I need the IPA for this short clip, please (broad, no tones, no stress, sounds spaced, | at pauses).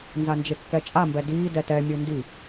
n z a n d͡ʒ e kː ɛ t͡ʃʼ a m b ɛ d iː d ɛ t ɛ mʲ ɯ n d i